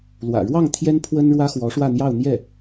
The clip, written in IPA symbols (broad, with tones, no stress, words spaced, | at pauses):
lwä̰˨˩ɻwɑ˥˩ŋ t̪ʰjɛ˥npʰwə˥n ɻwä˥xwɔ˧˥ʂwä˥˧n̪jɑ˥˧ʊ̯ n̪jɛ˥˩